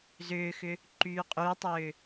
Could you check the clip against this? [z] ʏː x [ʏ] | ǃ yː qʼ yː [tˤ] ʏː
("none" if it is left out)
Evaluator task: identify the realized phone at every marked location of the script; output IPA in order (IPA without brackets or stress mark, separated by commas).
z, ʏ, tˤ